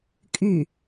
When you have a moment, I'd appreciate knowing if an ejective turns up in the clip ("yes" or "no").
yes